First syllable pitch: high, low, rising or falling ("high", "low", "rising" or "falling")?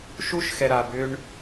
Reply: high